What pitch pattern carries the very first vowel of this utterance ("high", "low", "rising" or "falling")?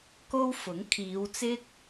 high